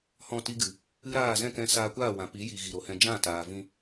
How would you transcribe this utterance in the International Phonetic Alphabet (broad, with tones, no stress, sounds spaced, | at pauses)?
h ɔ̃˦˨ t i˦ ɡ ɨ˨ | ɨ˦ ɾ aː˦˨ z ɛ̃˦˨ k ɛ̃˧ s aː˧ kʷ aː˦˨ w ã˨ p i˨˦ j i˨ ɣ i˨ ɾ o˨ h ɛ̃˧ d͡ʒ ã˦˨ t aː˨ v ĩ˧